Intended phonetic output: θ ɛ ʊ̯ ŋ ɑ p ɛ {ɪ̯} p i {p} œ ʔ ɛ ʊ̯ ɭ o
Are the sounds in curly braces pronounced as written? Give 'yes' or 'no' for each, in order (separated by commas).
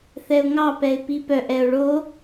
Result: yes, yes